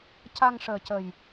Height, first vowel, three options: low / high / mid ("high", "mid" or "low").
low